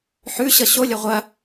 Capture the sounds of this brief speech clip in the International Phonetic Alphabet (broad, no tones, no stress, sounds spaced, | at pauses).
ħ ʉ ɕ ʌ ɕ o lʲ ɐ ʁʷ ɐ